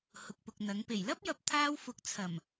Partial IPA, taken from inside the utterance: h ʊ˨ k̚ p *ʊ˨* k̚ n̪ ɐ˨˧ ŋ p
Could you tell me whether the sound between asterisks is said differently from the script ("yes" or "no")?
no